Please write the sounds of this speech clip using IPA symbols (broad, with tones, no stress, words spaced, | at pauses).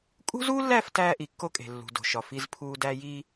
kʼṳ˦zuː˦lːæ˦˨f tæː˦ʔi˨kːo˦kʼe̤˨ lːṳ˨do̤˨ʃɒ˨ fi˦zpʰuː˦dæ˦ ji˦